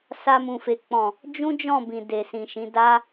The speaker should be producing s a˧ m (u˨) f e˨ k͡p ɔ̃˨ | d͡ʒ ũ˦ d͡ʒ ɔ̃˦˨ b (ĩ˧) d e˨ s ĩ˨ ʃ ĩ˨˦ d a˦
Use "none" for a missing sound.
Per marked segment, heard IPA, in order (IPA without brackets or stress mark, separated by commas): ũ˨, ĩ˨